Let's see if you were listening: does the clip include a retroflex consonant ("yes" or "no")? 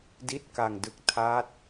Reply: no